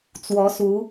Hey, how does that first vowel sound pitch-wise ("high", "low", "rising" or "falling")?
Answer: rising